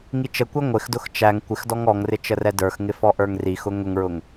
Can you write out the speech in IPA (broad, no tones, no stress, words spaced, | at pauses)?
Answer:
ŋit͡ʃəkʷɛ ŋʷɪxdʊx t͡ʃæŋ kʷɪxdɔŋ ɔŋrɪ t͡ʃərɛdə˞xŋɪ fɔʔə˞ŋrixʊ ŋʊŋɹʊŋ